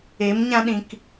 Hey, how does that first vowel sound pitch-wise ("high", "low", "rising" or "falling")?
rising